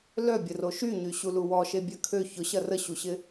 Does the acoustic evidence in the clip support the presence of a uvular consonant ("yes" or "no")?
no